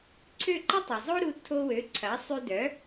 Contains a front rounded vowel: yes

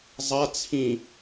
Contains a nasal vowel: yes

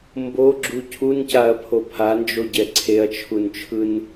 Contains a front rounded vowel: no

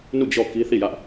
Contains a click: no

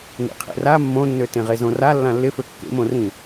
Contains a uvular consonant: yes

